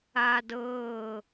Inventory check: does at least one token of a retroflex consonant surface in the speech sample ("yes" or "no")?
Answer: no